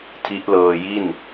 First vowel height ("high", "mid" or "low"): high